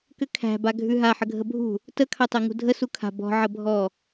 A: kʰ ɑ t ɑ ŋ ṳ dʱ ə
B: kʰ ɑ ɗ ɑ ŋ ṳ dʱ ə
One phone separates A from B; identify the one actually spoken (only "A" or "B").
A